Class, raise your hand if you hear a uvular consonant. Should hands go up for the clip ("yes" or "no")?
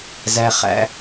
yes